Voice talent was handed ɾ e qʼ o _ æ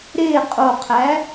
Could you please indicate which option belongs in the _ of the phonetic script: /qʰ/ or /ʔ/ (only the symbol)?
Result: qʰ